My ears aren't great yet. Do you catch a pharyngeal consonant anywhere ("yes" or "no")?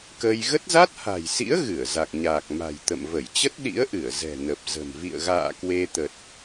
no